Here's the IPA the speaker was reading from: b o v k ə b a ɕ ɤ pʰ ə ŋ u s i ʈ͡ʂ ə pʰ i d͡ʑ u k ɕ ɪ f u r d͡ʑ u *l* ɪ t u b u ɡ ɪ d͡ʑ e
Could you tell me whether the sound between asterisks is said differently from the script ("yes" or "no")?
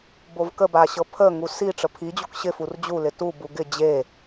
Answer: no